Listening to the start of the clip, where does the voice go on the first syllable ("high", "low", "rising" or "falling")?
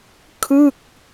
falling